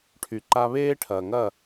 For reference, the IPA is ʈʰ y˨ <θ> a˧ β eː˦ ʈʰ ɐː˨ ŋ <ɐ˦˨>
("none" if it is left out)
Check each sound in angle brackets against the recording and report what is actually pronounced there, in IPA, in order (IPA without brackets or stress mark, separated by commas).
ǃ, ɐ˦˨